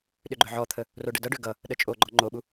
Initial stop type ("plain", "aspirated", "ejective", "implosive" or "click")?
implosive